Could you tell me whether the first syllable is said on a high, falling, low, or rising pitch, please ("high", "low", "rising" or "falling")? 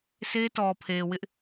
high